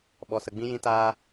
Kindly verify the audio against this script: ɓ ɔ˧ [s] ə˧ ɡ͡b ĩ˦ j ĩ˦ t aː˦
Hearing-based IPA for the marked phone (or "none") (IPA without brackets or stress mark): s